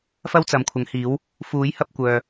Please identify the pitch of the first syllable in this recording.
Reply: high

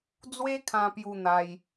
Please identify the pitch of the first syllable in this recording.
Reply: high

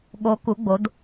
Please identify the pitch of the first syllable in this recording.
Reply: rising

